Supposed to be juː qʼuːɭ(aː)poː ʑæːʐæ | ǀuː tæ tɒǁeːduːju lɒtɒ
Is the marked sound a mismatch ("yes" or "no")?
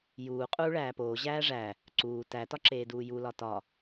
yes